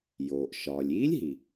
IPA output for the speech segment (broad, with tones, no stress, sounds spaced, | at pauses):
j oː˩ ʔ ʃ ɒː˩ lʲ iː˦˥ lʲ ɦ i˩